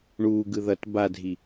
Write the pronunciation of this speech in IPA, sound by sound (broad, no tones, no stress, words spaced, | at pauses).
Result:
ɳuːɡɯ ðʌt badʱi